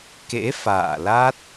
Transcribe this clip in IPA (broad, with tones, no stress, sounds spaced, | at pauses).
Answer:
k ḛ˧˥ f a̰ː˧˨ l a˦˥ t̚